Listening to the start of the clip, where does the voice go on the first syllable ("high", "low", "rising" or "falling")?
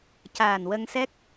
low